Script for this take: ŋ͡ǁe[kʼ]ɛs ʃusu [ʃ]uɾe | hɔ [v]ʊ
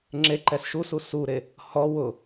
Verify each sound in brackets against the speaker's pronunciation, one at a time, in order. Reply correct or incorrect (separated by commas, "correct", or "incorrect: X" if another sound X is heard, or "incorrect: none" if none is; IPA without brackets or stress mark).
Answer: incorrect: ǃ, incorrect: s, incorrect: w